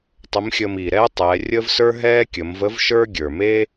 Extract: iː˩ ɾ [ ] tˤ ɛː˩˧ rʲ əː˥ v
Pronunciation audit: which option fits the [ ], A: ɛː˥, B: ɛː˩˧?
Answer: A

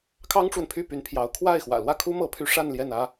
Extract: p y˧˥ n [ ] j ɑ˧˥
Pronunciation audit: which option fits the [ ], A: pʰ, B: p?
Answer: A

